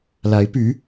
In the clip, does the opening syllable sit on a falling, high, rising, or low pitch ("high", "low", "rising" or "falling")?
rising